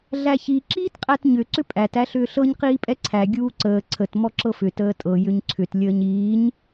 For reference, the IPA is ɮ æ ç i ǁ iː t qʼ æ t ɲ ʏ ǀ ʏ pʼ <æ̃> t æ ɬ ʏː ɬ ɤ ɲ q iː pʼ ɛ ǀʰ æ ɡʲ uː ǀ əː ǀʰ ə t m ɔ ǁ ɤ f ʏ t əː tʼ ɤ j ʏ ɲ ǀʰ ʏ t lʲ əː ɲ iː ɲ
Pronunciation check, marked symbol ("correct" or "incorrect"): incorrect